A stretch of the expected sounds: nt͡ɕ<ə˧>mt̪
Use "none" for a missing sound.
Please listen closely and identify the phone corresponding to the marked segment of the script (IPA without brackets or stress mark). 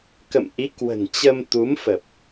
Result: ə˧